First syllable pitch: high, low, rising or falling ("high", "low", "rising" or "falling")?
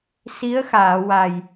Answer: rising